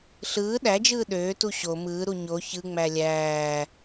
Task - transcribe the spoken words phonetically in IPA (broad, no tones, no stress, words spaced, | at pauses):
ɬɯː ɗæd͡ʒɯː ɗøːtu ɕo mɯːɾu ɲo çɯŋ͡mæ lʲæː